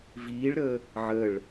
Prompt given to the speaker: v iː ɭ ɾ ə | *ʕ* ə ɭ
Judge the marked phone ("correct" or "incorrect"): correct